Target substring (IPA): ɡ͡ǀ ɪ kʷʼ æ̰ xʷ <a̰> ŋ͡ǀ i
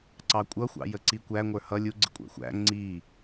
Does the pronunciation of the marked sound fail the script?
yes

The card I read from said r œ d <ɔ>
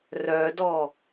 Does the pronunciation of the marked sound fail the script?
no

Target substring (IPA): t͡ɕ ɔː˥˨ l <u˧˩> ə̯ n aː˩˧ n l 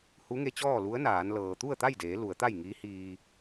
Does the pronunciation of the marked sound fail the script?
yes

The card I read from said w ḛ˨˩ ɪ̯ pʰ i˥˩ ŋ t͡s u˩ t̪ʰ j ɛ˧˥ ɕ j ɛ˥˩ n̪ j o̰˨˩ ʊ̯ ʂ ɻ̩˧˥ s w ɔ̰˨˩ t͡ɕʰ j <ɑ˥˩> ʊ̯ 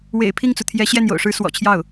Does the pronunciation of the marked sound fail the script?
no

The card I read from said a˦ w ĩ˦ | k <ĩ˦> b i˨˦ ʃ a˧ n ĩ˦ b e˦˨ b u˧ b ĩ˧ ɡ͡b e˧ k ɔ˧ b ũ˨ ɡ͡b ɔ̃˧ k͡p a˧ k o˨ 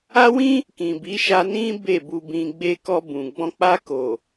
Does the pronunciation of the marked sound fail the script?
yes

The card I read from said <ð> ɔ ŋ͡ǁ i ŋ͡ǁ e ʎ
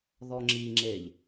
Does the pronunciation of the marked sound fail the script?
no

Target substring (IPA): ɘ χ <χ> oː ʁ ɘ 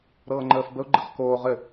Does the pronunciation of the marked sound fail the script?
yes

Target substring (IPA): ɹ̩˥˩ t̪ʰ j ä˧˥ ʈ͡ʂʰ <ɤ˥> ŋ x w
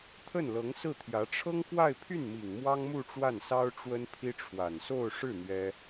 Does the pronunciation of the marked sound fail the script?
no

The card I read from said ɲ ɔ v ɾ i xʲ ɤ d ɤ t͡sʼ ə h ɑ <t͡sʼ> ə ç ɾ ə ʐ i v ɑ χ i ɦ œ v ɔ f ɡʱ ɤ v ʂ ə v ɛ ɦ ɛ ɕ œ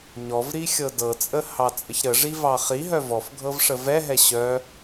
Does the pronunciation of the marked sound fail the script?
no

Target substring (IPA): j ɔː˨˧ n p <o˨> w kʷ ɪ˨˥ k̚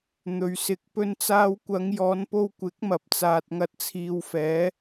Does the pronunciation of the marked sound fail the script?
yes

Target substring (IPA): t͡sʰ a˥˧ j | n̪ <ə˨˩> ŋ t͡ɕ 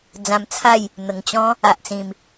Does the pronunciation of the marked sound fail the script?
no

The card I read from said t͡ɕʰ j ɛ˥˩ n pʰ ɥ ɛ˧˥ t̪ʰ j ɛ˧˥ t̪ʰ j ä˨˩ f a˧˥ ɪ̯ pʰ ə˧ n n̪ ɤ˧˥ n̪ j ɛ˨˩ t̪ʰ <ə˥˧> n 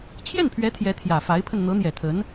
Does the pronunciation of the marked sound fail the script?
yes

